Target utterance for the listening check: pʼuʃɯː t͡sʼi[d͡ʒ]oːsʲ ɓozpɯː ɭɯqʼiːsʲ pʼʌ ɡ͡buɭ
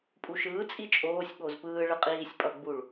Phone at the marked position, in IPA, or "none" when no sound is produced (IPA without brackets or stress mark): t͡ʃʼ